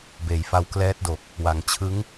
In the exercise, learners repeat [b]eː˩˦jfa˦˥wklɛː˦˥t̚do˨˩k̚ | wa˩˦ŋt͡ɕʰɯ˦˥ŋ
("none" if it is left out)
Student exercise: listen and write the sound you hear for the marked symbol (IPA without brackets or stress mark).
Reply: b